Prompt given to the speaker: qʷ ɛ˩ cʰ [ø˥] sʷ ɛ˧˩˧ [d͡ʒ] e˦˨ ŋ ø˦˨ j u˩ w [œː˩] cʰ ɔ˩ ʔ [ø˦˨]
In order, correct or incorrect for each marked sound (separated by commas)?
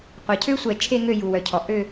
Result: correct, incorrect, incorrect, correct